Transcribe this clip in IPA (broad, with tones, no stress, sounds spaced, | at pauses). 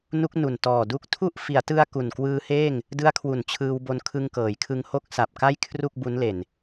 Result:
n u˦˥ k̚ n u˨˩ n t ɔː˨˩ d u˦˥ k̚ tʰ u˥˩ ʔ f i˩˦ a̯ t ɯ˧ a̯ k u˨˩ n k w ɯː˦˥ h eː˥˩ ŋ | d ɯ˦˥ a̯ kʰ w u˨˩ n t͡ɕʰ ɯː˧ w b o˧ n kʰ ɯ˧ ŋ k ɤː˩˦ j kʰ ɯ˧ ŋ h o˦˥ k̚ s a˨˩ p̚ k a˥˩ j kʰ r u˥˩ k̚ b u˦˥ n l e˨˩ n